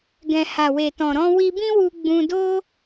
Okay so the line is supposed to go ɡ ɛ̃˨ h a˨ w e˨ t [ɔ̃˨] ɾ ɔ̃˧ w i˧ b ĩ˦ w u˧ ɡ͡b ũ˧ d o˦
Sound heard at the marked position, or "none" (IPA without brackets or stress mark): ɔ̃˨